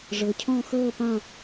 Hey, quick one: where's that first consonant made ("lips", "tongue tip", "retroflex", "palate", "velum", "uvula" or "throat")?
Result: retroflex